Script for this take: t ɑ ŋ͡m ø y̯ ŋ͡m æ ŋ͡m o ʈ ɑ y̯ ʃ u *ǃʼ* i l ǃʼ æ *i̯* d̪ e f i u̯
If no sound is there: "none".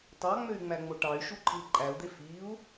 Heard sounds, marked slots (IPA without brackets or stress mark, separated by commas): ǃʼ, u̯